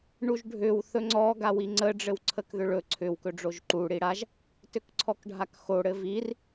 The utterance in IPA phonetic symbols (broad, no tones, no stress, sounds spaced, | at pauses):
ɳ u ʒ ɖʱ ʏ w θ ɵ ŋ͡ǀ ɔ ɡ a w i ŋ͡ǀ ə ɖ͡ʐ ɘ w ǀʰ ə k ð ʏ ɭ ɵ ǀʰ ʏ w k ɵ ɖ͡ʐ o ʒ ǃ u ɽ i ɽ a ʒ | t ʏ k ǀʰ ɔ k ɖʱ a k x o ɽ ɘ v i r